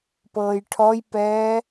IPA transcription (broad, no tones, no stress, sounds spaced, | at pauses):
p ɤː j ʈʰ ɔ j p ɛː